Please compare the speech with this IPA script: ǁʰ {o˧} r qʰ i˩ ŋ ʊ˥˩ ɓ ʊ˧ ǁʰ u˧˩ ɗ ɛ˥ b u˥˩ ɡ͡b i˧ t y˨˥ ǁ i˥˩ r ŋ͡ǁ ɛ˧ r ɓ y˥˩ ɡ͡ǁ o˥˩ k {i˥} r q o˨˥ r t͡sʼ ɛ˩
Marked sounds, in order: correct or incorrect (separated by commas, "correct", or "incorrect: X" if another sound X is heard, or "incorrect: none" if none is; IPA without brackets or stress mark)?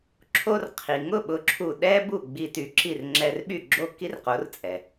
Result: correct, correct